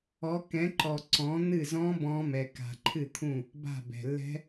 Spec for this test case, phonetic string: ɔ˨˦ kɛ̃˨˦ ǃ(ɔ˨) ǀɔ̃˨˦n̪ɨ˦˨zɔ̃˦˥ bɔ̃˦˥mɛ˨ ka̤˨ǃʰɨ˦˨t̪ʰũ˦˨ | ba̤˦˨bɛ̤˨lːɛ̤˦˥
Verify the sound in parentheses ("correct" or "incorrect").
correct